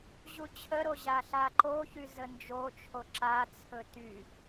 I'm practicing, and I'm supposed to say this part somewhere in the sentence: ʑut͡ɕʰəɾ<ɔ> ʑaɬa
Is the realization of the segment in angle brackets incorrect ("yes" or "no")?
yes